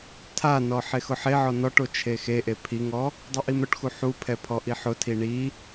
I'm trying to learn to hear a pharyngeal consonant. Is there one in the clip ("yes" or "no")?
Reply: yes